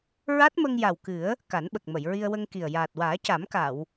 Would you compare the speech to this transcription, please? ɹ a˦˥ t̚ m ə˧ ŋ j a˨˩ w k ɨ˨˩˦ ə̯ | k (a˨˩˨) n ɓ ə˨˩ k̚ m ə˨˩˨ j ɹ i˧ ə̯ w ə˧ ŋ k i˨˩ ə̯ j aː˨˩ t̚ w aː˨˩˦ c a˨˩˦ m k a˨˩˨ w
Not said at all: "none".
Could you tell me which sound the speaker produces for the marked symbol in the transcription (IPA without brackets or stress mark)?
a˨˩˦